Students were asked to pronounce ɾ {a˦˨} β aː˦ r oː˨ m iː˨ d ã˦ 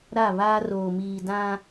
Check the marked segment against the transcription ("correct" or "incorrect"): correct